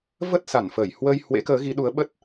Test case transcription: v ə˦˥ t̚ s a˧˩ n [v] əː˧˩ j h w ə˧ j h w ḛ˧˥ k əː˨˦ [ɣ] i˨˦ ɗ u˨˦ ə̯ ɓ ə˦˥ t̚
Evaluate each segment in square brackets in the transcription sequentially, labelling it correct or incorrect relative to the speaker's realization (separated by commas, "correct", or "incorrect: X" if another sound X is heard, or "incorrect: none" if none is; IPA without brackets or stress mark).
incorrect: f, correct